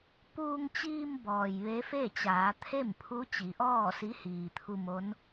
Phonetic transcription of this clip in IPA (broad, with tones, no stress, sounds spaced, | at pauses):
p uː˧ ŋ t͡ɕ iː˧ m b ɔː˩ j ʋ e˧˥ f e˥˨ t͡ɕ aː˩˧ t̪ʰ e˥˨ m pʰ u˧˥ t͡ɕ i˩˧ ʔ ɔː˥˨ s i˧˥ h iː˩ t̪ʰ u˧ m o˧˥ n